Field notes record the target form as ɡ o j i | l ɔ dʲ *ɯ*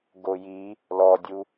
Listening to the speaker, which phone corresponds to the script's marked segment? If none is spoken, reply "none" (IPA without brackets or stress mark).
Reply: u